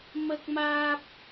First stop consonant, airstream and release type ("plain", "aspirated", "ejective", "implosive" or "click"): plain